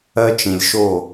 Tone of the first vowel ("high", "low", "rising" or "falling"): high